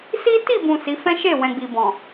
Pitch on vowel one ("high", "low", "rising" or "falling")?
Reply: high